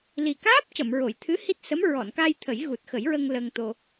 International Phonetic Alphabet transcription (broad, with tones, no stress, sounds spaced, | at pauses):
l i˨˩ k aː˦˥ p̚ c ə˨˩˨ m ɹ o˨˩˨ j t̪ʰ ɨ˧˥ h i˦˥ t̚ s ə˧˥ m ɹ ɔ˨˩˨ n k a˧ j t̪ʰ ə˨˩˦ j ɣ u˨˩ t̚ x ə˨˩˦ j ɹ ə˧ ŋ l ə˧ ŋ t̪ o˧